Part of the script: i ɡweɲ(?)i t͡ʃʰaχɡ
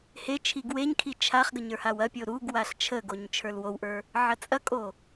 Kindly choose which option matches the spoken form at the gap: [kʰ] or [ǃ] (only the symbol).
kʰ